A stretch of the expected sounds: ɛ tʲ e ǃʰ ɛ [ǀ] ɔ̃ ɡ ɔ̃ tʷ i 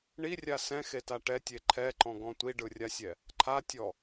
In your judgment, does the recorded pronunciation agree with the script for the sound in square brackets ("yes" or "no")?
no